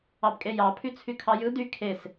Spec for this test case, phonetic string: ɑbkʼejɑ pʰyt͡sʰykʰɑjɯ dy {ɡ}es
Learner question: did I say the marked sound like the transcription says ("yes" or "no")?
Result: no